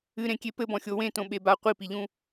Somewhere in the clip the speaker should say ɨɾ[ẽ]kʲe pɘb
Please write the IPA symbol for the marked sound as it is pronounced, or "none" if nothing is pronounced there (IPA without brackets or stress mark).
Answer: ẽ